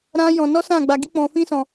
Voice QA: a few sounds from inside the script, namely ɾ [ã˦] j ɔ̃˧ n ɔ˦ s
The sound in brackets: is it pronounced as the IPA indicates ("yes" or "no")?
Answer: yes